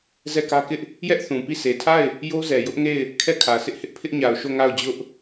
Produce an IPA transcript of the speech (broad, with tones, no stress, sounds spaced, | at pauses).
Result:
z ɛ˦˨ k ä˦ k ɪ˦ ʔ | j ɛ˦ ʔ θ ũ˨ p i˦˨ sʰ e˨ tʰ a˦˨ ɪ̯ | j o˦ z ɛ˨ j ʊ˦ ʔ ŋ e˦˨ ɪ̯ | kʰ ɛ˦˨ kʰ ä˨ s ɪ˦ ʔ h ɪ˦ ʔ pʰ ɪ˦ ʔ ɲ a˨ ʊ̯ ʃ o˦˨ ŋ a˦˨ ʊ̯ d͡ʑ ʊ˦ ʔ